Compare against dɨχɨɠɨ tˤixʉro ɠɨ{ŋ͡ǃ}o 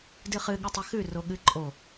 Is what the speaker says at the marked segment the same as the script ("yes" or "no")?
no